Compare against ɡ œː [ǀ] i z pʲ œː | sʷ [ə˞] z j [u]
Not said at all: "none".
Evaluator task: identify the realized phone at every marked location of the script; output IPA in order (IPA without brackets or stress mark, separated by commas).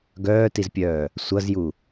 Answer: t, ʌ, u